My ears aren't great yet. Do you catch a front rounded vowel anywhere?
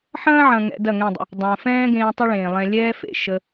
no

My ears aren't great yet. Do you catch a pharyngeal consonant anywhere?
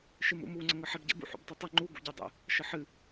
yes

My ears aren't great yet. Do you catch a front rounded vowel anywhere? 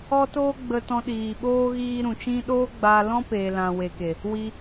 no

